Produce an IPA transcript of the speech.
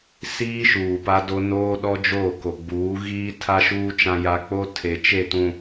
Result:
s iː˦ ʃ uː˨ p a˦ d o˦ n oː˦ ɗ ɔ˦ d͡ʒ oː˦˨ k o˨ ɡ͡b uː˨˦ ɣ iː˦ tʰ a˦ ʃ uː˦ t͡ʃ ã˦ j a˦ k͡p o˦ tʰ e˨ t͡ʃ e˦˨ t ũ˨

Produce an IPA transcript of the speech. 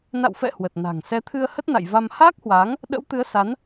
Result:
n a̰˧˨ w f ɛ̰˧˨ h w ə˨˩ t̚ n a̤˨˩ ŋ s ɛ˨˦ t̪ʰ ɨ˧ ə̯ h ə˦˥ t̚ n a̰˧˨ j v a˧ m h aː˦˥ k̚ h w aː˨˦ ŋ | ɗ ə̰˧˥ w t̪ ɨ˨˦ ə̯ s a˨˦ n

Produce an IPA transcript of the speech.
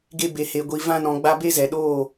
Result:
ɡ e˧ b e˨ h e˨ ɡʷ i˨ v ã˧ n ɔ̃˨ ɡ͡b a˧ b e˦ z ɛ˨ ɗ oː˦˨

